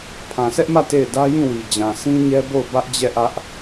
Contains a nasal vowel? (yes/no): yes